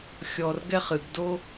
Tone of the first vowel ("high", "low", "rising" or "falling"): low